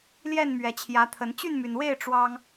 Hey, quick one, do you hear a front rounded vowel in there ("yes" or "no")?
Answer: yes